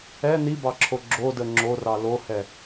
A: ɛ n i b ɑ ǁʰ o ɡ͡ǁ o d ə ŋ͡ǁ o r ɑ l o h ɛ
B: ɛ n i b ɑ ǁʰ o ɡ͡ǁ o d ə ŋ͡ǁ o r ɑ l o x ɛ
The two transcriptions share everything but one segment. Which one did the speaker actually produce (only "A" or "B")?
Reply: A